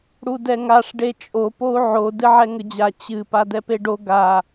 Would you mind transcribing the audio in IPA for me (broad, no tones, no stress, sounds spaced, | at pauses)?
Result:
ɽ u d ɛ ŋ a ʂ ɖ e t͡ʃʼ o p o u̯ ʕ o d ɨ ʕ ɛ ŋ ə d͡ʑ a t͡ɕ ɨ p a d ɛ p e ɖ o ɡ a